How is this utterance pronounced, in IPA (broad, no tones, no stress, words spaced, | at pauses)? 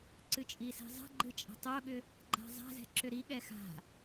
ǀɨt͡ʃʼisɛ̤zˤa̤ ɡ͡ǃɨt͡ʃʼa̤tˤoɠʏ | ɡ͡ǃa̤zˤa̤zɛ̤ ǁʏɾiɠɛ xa̤